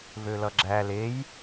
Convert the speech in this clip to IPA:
v ø l ʌ ɡ͡ǁ æ l e j

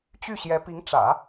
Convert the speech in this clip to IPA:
t͡ɕ y˥˩ ɕ j ɛ˧˥ p i˧˥ ŋ ʈ͡ʂ ä̰˨˩˦

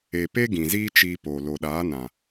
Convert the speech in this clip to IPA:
e˨ p e˦ ɡ ĩ˨ z iː˦ t͡ʃ iː˧ p oː˨ l o˨ ɗ aː˨˦ n ã˨

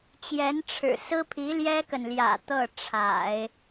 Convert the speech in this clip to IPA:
t͡ɕ j ɛ˧˥ n ʈ͡ʂʰ ɻ̩˨˩ s ɹ̩˥ pʰ i˧˥ l j ɛ˥ k ə˨ n l j ä̰˨˩ t̪ ɤ˥˩ ʈ͡ʂʰ a̰˨˩˦ ɪ̯

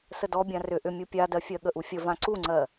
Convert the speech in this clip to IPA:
s ə d ɔ bʲ ã r ʏ ʔ ʏ mʲ u pʲ a d ɜ fʲ ɜ ɠ ə ʔ u fʲ ə v ã ǀ u ŋ͡ǀ ɜ

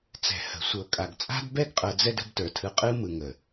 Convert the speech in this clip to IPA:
t͡s ɛ̤˨ h ə̤˨ sʷ ɤ˨ kʼ a˨ ɡ t͡sʼ a̤˦ d b ɛ˦˨ ɡ qʼ ɤ˧ d͡z ɛ˦ d ə̤˧ b t ə˞˨ tʰ ɯ˧ qʼ ɯ˦ m ɯ˨ ŋ ə˨

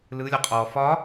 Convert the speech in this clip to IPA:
l ɯ lʲ ɔ qʼ ɔ f ɒ

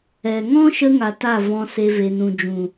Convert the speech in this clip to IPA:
ɛ˨ ŋ ɔ̃˦ ʃ ə˧ ŋ a˨ t a˦˨ v ɔ̃˧ s e˧ v e˨ n ũ˨ d͡ʒ ũ˨

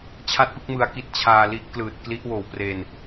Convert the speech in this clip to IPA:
t͡ɕʰ a˥˩ t̚ p ɯ˦˥ k̚ m ɯ˧ a̯ k i˦˥ t̚ t͡ɕʰ aː˧ l i˦˥ ʔ k l ɯː˨˩ t̚ k l i˦˥ ʔ w oː˨˩ w p r eː˧ n

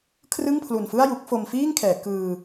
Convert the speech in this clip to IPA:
kʰ r ɯ˥˩ ŋ pʰ l u˨˩ n f ɯ˥˩ a̯ j u˦˥ k̚ f o˧ m f iː˥˩ ŋ kʰ ɛː˩˦ k ɯː˧

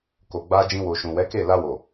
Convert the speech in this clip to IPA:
k o˨ ɡ͡b a˧ d͡ʒ ĩ˧ w o˨ ʃ ũ˨ w ɛ˨˦ k e˦˨ l a˧ w o˨

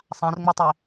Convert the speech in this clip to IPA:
sˤ ã r ŋ͡m u tˤ i

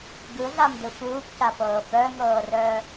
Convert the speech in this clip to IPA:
ɡ ɯ ɮ a m d ɯ f uː p c a p ɤː p œ ŋ ɤː r œ

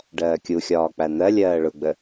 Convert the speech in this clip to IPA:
ɖ ɜː kʲ u xʲ ɒː k͡p æ n̪ ɜ lʲ ɜː ɭ ʊ ɡ͡b ə

